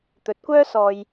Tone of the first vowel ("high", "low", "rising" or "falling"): rising